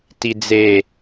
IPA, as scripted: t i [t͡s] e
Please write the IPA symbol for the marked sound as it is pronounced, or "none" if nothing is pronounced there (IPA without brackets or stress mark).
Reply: d͡z